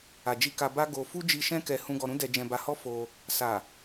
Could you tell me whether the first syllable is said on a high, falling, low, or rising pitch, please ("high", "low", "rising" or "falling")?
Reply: low